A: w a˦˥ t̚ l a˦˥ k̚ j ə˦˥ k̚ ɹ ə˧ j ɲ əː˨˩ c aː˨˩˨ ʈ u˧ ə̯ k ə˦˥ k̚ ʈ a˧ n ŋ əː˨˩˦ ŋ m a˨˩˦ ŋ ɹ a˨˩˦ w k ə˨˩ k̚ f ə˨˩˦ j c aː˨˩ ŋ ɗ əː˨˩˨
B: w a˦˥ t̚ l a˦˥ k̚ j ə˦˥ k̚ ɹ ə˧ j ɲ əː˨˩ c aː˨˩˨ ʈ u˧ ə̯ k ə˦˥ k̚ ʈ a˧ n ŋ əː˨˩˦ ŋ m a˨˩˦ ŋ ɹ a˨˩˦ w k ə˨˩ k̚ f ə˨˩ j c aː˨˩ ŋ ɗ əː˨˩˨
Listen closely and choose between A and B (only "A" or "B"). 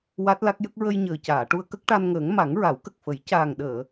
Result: A